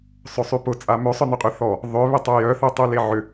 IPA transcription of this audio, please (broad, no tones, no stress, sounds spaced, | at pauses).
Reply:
sˤ ø sˤ y p ʊ t͡sʼ a m ø sˤ œ n ʏ qʼ y θ ɔ | ðˤ ʏ β ɪ tˤ œ j œ θ ø tˤ y l e ʕ ʏ